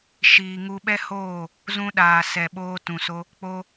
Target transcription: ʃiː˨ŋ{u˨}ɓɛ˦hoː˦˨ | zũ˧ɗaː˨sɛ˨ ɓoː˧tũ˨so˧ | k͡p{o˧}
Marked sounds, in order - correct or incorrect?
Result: incorrect, correct

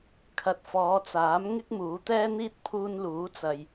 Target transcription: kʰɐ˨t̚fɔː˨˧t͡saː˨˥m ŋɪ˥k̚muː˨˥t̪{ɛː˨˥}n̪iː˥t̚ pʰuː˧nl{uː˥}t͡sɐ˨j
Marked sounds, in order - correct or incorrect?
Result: incorrect, incorrect

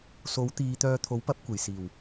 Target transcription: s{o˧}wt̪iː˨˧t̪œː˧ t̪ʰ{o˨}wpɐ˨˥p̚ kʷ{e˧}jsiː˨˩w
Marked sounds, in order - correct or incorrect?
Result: incorrect, incorrect, incorrect

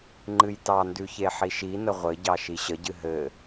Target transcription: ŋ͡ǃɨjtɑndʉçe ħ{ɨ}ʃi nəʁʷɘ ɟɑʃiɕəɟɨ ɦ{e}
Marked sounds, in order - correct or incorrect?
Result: incorrect, incorrect

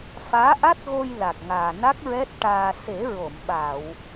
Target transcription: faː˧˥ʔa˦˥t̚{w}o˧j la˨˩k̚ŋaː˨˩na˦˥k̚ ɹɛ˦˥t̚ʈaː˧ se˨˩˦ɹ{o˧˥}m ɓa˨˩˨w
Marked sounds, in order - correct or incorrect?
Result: incorrect, incorrect

